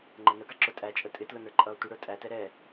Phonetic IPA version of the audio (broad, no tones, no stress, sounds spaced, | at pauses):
ŋ͡ǃ ɛ n ə ɡ ɑ ǁ ʊ tʼ æ t͡ʃʼ ə tʼ ɪ t l ʊ n ə˞ ǃʼ ʌː tʷ ə ɽ ə˞ tʼ æ t ɛ ɾ ɛ